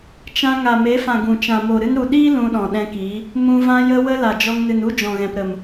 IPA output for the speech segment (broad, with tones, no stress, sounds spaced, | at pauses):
t͡ʃ ã˧ ŋ a˨ m e˨˦ f ã˨ ɡ ũ˨ t͡ʃ ã˨ m o˨ ɾ ɨ˧ n ɾ u˨ ɗ iː˦ l ũ˧ ɗ ɔ̃˨ ɗ ɛ̃˧ k iː˨˦ | m ũ˧ v ã˧ j ə˧ w ə˧ l a˨ d͡ʒ ɔ˧ ŋ n ɨ˨ n u˦ d͡ʒ ɔ̃˨ ɣ ɛ̃˨ p ɾ ə˨ m